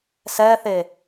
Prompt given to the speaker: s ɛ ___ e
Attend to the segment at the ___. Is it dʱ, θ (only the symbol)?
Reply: θ